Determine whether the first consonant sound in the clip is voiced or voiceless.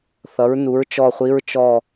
voiceless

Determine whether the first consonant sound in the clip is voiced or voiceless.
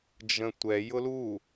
voiced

